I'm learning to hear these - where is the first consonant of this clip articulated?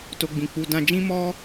tongue tip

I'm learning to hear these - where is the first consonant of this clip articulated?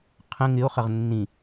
uvula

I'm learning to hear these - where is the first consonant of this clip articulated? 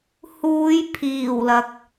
throat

